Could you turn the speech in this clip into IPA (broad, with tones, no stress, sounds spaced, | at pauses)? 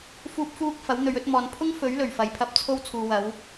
f uː˧ p̚ f uː˧ k̚ f ɐ˨˥ w n̪ ɵ˨˧ ɥ ɵ˨˥ t̚ m ɔː˨ n pʰ ʊ˥ ŋ f ɵ˨˥ ɥ l ɵ˨˩ ɥ f ɐ˨ j pʰ ɐ˧ p̚ t͡sʰ o˧ w t͡sʰ uː˨ w ɐ˨˧ w